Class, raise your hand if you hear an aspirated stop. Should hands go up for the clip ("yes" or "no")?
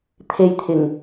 yes